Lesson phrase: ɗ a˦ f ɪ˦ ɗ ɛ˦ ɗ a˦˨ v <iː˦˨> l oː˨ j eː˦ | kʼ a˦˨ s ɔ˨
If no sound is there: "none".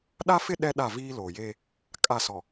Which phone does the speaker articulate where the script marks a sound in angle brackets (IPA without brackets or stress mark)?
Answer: iː˦